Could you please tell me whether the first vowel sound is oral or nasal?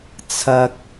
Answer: oral